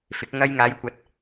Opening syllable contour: rising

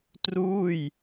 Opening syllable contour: falling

